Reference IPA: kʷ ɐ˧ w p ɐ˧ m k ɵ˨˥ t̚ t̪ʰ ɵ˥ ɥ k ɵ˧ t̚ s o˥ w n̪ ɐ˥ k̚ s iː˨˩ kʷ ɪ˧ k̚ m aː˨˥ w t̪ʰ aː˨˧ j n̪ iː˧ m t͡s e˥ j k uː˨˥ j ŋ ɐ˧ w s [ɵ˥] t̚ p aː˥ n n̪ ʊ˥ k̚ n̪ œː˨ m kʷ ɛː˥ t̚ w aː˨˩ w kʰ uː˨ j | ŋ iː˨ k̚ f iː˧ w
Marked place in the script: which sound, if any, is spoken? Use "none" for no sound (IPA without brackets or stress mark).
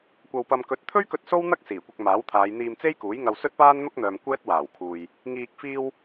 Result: ɵ˥